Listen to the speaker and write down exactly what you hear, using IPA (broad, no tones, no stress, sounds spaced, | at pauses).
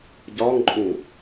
ɟ ɒ ŋ ǃʼ ũ